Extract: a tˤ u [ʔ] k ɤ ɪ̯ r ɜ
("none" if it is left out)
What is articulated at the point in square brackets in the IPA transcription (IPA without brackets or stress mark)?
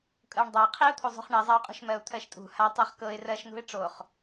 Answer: χ